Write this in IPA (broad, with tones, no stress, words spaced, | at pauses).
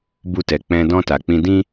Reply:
bu˧tɛ˨k͡pɛ̃˧ dɔ̃˧ta˨k͡pĩ˧dĩ˦